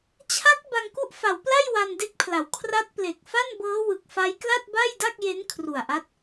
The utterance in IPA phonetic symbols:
t͡ɕʰ a˦˥ k̚ b a˧ ŋ k u˥˩ ʔ f a˩˦ w p l a˥˩ j w a˧ n d e˦˥ k̚ pʰ l a˩˦ w kʰ r a˦˥ t̚ p l e˨˩ k̚ f a˥˩ n b ɤː˦˥ w ɯ˨˩ k̚ f a˦˥ j k l a˥˩ t̚ b a˥˩ j d a˥˩ k̚ j e˦˥ n kʰ r u˨˩ a̯ ʔ a˦˥ t̚

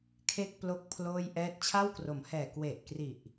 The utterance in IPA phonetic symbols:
kʰ e˥˩ k̚ p l o˥˩ k̚ pʰ l oː˥˩ j ʔ ɛː˥˩ t̚ t͡ɕʰ a˥˩ w k r o˩˦ m h ɛː˨˩ k w e˨˩ ʔ k r i˨˩ ʔ

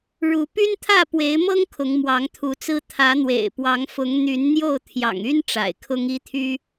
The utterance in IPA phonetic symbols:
ɻ u˨˦ p y˦ n t̪ʰ ä˥˨ p w e˨˦ ɪ̯ m ɤ˦ ŋ kʰ ʊ˨˦ ŋ m w ɑ˨˦ ŋ t̪ʰ u˨˦ t͡s ɹ̩˦ t̪ʰ ä˨˦ n̪ w ḛ˨˩ ɪ̯ p w ɑ˨˦ ŋ f ʊ˨˦ ŋ n̪ y˨˦ n n̪ j o˥˨ ʊ̯ t̪ʰ j ɑ̰˨˩ ŋ y˦ n ʈ͡ʂ a̰˨˩ ɪ̯ kʰ ʊ˦ ŋ i˦ t̪ʰ y˦

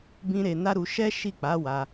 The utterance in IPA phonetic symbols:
b ĩ˦ ɾ e˧ n a˦ ɾ u˧ ʃ ɛ˦ ʃ i˦˨ k͡p a˨˦ w a˧

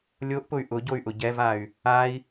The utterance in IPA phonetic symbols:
lʲ o ʔ p ʊ y̯ ʔ ʊ ɟ o y̯ ʔ ʊ ɟ ɛ v a y̯ | a i̯

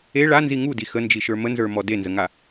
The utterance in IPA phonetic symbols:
e ɭ a n z i ŋ u d i x ə n d͡ʒ i ʃ ə˞ m ə n z ə˞ m ɔ d e n z ə ŋ a

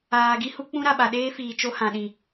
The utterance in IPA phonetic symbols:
aː˨ ɡ i˦ h u˦ k͡p ũ˦ ɾ a˨ ɓ a˨ ɗ eː˦ f iː˨ t͡ʃ o˦ h ã˨ ɗ ĩ˨

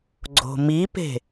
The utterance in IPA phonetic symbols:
ɡ͡ǀ o̤ m i p e̤

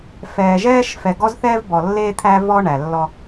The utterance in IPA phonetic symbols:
f ɛː˨ ʒ ɛː˦ ʃ f ɛ˨ ɡ ɔ˦ z θ ɛː˦ v b ɔ˨ lː eː˦ t̪ʰ æ˦ v ɔ˦ ɳ æ˨ lː ɔ˦

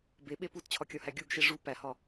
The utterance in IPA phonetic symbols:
b e ɓ e p u t t͡ɕʰ ɒ kʲ ɒ h æ ɡʲ u ɡ ʃ e ʐ u p æ h ɒ

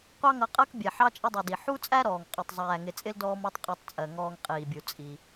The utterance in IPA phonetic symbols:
qʷ ɑ˦ ŋ ʌ˨ qʼ əː˦ k bʲ ɛ˩ ħ ɑ˥ t͡ʃʼ ə˦ dˤ ɛ˨ d i˩ ħ u˦ t͡sʼ æ˦ ɾ ɔː˩ ŋ qʼ ɜ˨ tˤ zˤ æː˨ ŋ ɪ˨ t͡sʼ ɪ˥ l d ɔː˥ m ɔ˥ tˤ qʼ ɔ˦ tˤ t͡sʼ ɜ˩ ŋ ɔː˦ ŋ qʼ iː˩ bʲ u˨ t͡sʼ i˩

